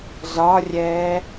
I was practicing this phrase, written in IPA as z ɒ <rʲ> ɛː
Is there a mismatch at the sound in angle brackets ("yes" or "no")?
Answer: no